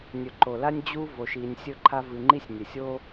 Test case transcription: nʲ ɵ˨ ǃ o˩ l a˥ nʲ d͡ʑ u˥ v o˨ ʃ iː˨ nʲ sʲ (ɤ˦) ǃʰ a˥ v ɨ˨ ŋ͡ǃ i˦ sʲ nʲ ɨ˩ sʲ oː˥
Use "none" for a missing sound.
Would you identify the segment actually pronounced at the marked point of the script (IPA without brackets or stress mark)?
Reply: ɵ˦